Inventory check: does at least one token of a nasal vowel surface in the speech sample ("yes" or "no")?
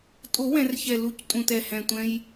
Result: yes